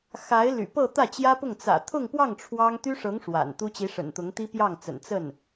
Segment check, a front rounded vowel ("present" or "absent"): present